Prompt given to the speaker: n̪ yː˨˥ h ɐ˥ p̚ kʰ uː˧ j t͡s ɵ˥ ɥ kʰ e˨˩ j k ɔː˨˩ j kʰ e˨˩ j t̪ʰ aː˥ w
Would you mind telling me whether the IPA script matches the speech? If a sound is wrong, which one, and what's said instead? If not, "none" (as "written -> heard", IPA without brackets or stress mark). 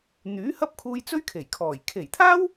k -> kʰ